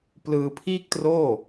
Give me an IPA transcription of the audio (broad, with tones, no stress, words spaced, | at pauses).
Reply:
plɯː˧pʰiː˥˩k̚troː˥˩